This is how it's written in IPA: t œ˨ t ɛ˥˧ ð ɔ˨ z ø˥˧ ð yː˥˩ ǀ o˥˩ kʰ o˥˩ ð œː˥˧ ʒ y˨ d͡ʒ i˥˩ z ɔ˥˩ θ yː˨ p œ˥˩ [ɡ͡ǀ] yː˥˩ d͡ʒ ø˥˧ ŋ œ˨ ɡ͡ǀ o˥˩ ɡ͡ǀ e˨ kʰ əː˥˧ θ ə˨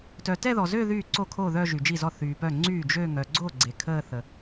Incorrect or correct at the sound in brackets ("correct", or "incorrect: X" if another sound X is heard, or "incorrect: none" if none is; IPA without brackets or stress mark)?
incorrect: ŋ͡ǀ